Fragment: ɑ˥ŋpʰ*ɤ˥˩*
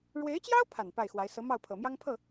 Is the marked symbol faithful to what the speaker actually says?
yes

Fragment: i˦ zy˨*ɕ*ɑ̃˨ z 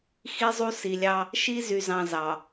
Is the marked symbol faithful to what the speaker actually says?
no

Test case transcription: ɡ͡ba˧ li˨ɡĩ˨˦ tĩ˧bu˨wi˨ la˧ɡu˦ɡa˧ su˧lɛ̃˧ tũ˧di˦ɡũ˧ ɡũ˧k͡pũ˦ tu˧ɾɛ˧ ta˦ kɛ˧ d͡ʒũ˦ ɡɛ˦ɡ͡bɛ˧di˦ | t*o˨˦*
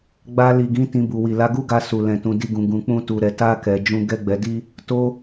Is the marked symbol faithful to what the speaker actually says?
no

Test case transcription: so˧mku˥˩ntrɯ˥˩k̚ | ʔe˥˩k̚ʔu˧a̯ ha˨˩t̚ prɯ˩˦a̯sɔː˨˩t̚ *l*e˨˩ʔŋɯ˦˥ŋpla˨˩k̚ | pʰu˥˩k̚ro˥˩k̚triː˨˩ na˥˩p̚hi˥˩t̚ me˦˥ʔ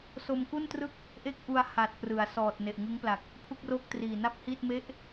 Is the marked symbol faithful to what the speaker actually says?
no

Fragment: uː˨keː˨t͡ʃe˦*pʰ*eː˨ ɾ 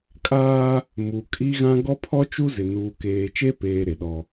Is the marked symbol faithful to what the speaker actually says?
no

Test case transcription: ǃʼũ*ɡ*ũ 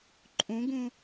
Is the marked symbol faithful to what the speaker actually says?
yes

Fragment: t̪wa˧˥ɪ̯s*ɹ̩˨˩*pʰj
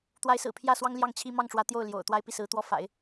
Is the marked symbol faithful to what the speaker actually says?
yes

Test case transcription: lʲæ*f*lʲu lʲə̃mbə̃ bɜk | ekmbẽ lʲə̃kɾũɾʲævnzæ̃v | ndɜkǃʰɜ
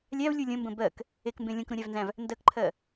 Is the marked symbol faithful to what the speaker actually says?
no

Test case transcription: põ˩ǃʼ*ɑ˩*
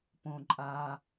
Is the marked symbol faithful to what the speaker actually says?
no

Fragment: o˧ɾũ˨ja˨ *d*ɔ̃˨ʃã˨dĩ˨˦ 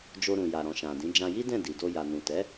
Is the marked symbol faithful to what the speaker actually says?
no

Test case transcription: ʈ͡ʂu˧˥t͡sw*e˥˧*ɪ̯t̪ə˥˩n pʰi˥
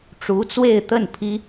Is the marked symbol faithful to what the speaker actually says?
yes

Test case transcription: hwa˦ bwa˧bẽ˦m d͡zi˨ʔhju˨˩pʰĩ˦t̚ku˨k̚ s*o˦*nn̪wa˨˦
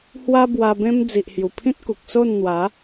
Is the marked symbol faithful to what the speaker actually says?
no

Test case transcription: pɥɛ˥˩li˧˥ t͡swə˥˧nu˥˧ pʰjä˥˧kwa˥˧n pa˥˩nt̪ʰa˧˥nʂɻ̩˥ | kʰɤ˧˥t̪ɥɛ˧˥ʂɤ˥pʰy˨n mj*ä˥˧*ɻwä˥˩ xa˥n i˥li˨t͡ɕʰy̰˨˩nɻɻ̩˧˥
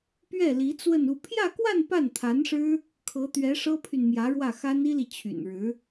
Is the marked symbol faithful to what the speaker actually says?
no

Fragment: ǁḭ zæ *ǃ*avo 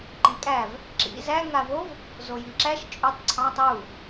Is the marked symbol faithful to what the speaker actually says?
no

